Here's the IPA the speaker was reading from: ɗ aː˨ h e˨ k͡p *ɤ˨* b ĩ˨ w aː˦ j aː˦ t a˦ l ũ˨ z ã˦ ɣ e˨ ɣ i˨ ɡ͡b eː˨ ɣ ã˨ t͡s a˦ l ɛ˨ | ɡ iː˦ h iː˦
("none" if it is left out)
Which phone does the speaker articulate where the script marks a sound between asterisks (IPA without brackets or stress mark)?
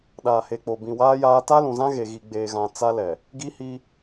o˨